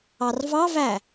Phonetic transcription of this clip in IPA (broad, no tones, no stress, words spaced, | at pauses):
ɑrvɑvæ